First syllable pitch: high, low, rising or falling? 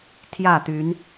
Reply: falling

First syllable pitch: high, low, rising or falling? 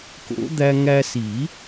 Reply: rising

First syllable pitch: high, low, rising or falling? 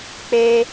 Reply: high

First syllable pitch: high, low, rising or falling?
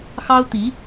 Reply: high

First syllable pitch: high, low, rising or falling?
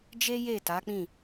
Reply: high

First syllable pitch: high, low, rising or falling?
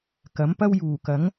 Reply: rising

